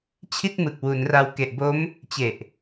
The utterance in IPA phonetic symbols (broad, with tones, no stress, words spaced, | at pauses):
t͡ɕʰi˥˩t̚mɯ˨˩k̚wu˩˦nra˧w ke˨˩ʔbo˦˥m | t͡ɕe˨˩ʔ